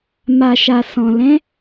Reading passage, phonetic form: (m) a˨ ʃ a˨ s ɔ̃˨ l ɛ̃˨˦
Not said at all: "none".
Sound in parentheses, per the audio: m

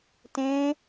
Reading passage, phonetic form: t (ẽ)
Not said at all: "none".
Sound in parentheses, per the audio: ẽ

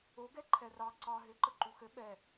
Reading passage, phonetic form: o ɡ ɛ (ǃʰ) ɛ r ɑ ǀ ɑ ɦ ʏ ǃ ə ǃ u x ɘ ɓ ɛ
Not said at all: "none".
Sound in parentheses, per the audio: ǃʰ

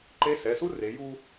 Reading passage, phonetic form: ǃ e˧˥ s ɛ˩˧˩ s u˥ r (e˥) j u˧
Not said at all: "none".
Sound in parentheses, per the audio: e˩˧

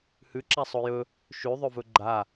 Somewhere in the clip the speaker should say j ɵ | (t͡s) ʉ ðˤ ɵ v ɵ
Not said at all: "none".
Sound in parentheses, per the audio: ʃ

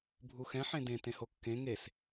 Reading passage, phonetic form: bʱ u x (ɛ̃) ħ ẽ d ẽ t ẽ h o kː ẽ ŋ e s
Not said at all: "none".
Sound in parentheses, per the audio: ɛ̃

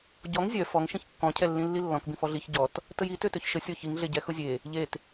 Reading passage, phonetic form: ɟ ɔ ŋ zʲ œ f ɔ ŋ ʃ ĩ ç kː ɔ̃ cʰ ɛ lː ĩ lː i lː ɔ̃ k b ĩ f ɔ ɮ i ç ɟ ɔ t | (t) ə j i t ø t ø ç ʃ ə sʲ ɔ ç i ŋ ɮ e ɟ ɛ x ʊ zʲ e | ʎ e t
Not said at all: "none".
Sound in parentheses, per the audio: t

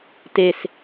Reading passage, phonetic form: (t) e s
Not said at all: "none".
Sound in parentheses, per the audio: t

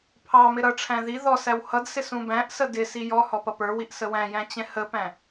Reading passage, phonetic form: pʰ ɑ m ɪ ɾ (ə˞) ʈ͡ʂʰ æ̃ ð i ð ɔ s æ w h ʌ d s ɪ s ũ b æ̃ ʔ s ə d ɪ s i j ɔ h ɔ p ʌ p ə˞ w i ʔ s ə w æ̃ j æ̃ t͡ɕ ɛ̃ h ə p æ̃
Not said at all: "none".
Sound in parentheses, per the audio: ʌ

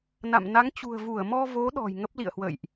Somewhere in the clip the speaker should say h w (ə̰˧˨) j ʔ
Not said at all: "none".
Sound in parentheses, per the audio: ə̰˧˨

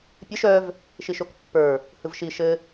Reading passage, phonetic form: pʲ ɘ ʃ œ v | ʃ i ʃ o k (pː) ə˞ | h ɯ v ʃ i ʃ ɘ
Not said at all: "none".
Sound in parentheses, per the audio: pː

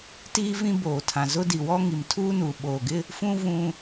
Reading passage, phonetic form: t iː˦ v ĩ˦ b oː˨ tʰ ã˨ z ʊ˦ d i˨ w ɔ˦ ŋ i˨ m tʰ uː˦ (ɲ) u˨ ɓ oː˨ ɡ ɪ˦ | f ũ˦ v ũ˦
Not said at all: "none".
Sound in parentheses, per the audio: n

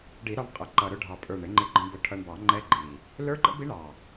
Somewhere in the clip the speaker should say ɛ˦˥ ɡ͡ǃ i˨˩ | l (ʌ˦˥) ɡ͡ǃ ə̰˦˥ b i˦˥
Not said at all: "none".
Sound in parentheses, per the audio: ə˞˦˥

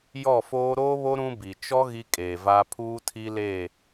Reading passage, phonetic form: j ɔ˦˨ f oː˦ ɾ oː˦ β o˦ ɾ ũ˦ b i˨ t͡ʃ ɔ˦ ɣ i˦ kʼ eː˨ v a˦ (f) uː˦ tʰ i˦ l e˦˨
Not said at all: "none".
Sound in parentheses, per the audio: pʰ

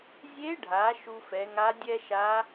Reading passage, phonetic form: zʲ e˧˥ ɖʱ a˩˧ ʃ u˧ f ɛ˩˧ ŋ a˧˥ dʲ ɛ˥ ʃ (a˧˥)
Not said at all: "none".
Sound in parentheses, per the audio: a˧˥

